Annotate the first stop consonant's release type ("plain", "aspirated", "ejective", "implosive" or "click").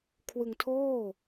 aspirated